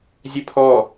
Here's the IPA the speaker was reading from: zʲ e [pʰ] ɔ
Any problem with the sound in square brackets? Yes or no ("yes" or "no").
no